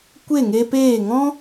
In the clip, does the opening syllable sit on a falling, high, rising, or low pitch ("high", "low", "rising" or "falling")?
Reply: falling